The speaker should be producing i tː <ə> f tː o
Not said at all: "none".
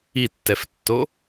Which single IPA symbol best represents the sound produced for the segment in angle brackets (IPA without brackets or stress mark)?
ɛ